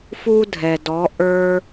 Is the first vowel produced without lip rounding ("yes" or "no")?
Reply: no